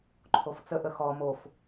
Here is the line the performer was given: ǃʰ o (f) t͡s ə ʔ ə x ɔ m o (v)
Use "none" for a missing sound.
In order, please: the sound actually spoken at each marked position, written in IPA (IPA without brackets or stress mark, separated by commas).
f, f